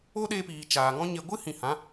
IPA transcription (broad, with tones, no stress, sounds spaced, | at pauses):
o˦ ɗ e˧ p iː˨ t͡ʃ aː˨ ŋ ɔ̃˦ ɲ e˧ ɡʷ ɨ˦ h ĩ˨ h ã˨˦